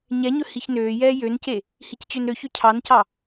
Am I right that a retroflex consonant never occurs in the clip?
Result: yes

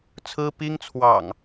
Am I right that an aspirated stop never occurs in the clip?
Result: no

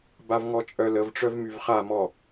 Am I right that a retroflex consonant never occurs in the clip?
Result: no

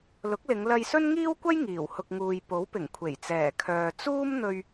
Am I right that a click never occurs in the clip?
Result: yes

